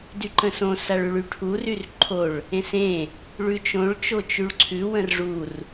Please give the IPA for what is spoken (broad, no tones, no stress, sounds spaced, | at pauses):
d y ǃ ə̃ s õ s a ɭ ʉ ɭ y ʈʰ u r y r ǃʰ o ɭ | ẽ s ẽ | ɭ ʉ t͡ʃ õ ɭ t͡ʃ o t͡ʃ y ɭ ǀʰ ʉ w ə̃ r ʐ u r